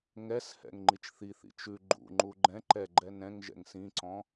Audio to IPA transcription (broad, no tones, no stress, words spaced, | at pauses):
ŋɛshɛ̰ŋ ŋ͡ǃit͡ʃθiθḭ t͡ʃʉ ɡ͡ǃṵŋ͡ǃu ɡ͡ǃɛ̃ ǃɛɡ͡ǃɛ nɛ̃ŋ ʒɛ̰ŋsĩǀɔ̃